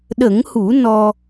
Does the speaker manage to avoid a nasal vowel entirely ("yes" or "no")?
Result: yes